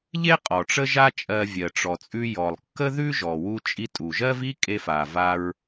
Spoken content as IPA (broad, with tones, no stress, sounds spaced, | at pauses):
ʎ e˥ qʼ ɔ˩ ʈ͡ʂ ə˥ ʒ a˥ t͡ʃʼ ɜ˧ vʲ ɜ˩ ʈ͡ʂ ɔ˩ t͡sʼ ʉ˧ j ɔ˩ lˠ kː ə˥ ð ʉ˥ ʒ ɔ˩ w u˧ t͡ʃʼ i˧ tʼ u˩ ʒ ɜ˥ v i˥ kʼ e˧ f a˩ v a˧ ɹ